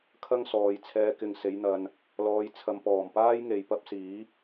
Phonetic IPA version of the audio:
kʰɐ˥ŋsɔː˨jt͡sʰɛː˧ kɪ˨ŋse˨˧jn̪ɐ˨n | lɔː˨˧jt͡sʰɐ˨m pɔː˨˩mpaː˥jŋe˨j pɐ˥p̚ siː˨˥

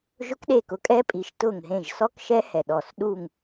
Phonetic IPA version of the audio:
ʒʊ˦˥kɗe˦˨kʊ˨˥kʼɛ˦˥ pʼi˨˥ʃ tʊ˦˨ŋɦẽ˦˨ʒ sɔ˦˥kʃɛ˦˥hɛ˨˩ ɗɔ˨˩sɗu˦˨ŋ

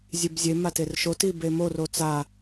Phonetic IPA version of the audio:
zʲebzʲe materʃo tibemo rot͡sa

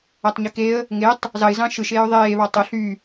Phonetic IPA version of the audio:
ætˤɲykeə̯ | ŋetˤ | zɑɪ̯zɑ̃ ʃɯʃ eːʊ̯ðˤeːβɑ tˤo ɬy

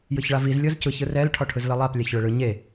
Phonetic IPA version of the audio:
jɯçɭaviz lʲɤzcɯç ɯrɛl ʈʰɔʈʰɯzlɤlˠap lʲaçɭɯɭɯ ɲe

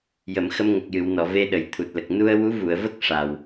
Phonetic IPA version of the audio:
jə˨˩˨mxə˧m ŋə˨˩k̚jɨ˨˩˨wnɔ˨˩˨ ve˧ɗə˨˩j t̪ʰu˨˩t̚lə˨˩k̚ nu˧ə̯wu˧˥vu˨˩˨ə̯və˦˥k̚ ʂa˨˩w

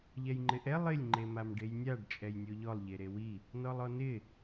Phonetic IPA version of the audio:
ʎɛjŋ͡ǃɪʔɛ lˠɪlʲ ŋ͡ǃemamɖejnʲaɖ t͡ʃʼɛjnʲoʎɔlˠ ʎeɾewi | nɔlˠɔnɪ

